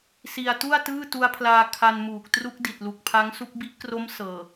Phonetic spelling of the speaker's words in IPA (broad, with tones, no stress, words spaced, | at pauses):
si˧a̯ tu˥˩a̯tɯː˥˩tu˦˥a̯pʰlaː˧ kʰa˧nmuː˨˩k̚ tru˦˥k̚di˨˩t̚ lu˨˩k̚pʰa˦˥ŋsu˦˥k̚ bi˦˥ʔkro˦˥m sɤː˨˩